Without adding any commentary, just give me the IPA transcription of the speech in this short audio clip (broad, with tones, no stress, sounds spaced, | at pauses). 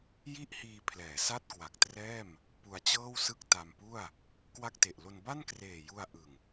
j i˥˩ ʔ h iː˧ pʰ l ɛː˩˦ s a˥˩ t̚ k w a˨˩ k̚ t r ɛː˥˩ m | p u˧ a̯ t͡ɕ ɤː˥˩ w s ɯ˥˩ k̚ t a˧ m p u˥˩ a̯ | k w a˥˩ k̚ t e˨˩ ʔ l o˧ n b a˥˩ n k r eː˨˩ j u˧ a̯ ʔ ɯ˨˩ ŋ